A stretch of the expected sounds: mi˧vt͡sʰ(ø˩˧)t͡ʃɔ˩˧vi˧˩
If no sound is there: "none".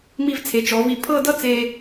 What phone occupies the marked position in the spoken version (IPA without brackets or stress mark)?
e˩˧